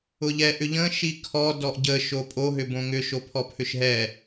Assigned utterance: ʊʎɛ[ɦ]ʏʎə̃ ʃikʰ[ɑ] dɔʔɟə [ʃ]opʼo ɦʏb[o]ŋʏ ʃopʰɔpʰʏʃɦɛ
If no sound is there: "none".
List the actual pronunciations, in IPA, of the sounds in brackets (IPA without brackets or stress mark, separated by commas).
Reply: ʔ, ɔ, ʃ, õ